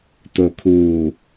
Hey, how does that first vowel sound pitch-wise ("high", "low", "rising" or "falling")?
low